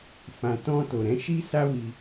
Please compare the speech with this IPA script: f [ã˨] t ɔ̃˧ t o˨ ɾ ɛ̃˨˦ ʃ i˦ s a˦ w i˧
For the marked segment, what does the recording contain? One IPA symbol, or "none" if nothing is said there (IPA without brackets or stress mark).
ã˨